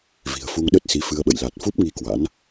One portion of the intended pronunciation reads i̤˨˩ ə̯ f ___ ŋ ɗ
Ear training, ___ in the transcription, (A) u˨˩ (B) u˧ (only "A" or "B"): B